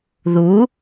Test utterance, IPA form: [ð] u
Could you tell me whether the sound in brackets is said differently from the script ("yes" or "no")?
no